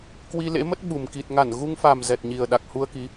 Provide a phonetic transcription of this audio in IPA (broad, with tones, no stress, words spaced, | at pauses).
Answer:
kwi˧lḛ˧˥mə˦˥t̚ ɓu˨˩m ki˨˩t̚ŋa˧˩n ɣu˧ŋfa˨˩m zɛ˨˩t̚ɲi˨˩ə̯ ɗa˨˩k̚hu˧ə̯ki˨˦